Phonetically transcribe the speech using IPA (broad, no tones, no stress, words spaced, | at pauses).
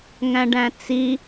ŋæ̃ɖæ̃t͡si